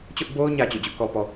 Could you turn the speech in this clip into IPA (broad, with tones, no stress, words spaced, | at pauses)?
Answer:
t͡ɕʊ˦ʔbo˦ʊ̯ɲä˨ t͡ɕo̰˦˨d͡ʑʊ˦ʔkɔ˦pɔ˨